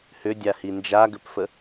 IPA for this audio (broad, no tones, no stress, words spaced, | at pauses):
hʏdʲa hind͡ʒaɡʏpfə